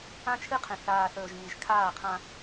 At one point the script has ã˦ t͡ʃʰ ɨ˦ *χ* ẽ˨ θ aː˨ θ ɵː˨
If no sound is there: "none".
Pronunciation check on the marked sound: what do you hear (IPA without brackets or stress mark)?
qʰ